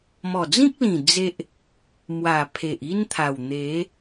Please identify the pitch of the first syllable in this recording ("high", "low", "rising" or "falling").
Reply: low